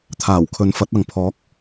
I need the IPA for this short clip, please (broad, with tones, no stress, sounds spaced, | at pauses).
t̪ʰ aː˨˩ w kʰ ɵ˨˧ n f ɐ˨˥ t̚ ɐ˨ ŋ pʰ ɔː˨˥ k̚